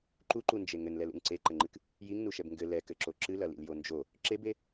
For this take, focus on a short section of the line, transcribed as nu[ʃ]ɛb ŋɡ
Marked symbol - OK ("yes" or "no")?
yes